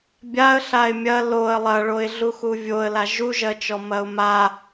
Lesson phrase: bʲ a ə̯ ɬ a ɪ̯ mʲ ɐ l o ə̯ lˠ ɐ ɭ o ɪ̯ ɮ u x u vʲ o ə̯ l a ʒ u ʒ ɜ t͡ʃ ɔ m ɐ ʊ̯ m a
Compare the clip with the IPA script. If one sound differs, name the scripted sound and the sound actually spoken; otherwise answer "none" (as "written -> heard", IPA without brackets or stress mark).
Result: none